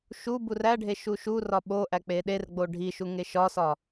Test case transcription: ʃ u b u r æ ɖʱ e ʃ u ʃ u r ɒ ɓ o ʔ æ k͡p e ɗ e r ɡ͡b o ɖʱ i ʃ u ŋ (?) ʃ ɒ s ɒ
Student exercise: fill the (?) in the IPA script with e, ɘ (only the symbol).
e